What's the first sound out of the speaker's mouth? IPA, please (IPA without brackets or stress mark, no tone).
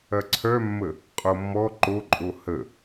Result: ɐ